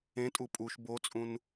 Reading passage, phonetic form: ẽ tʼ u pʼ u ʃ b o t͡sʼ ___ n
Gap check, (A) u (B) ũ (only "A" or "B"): B